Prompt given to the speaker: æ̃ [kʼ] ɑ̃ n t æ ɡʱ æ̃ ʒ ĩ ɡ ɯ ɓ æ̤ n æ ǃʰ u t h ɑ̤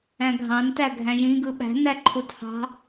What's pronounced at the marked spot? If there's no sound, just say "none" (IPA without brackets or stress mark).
ɡʱ